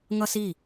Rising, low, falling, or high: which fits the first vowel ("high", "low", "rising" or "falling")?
high